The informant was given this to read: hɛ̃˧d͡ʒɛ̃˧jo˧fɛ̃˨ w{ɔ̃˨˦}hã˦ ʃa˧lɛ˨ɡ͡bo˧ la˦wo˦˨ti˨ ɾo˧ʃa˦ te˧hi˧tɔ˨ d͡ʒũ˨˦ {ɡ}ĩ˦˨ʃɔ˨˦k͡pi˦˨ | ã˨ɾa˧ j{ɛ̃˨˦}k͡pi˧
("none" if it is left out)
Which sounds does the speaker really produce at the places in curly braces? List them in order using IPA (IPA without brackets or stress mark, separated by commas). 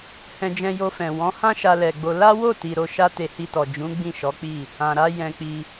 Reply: ɔ̃˨˦, ɡ͡b, ɛ̃˧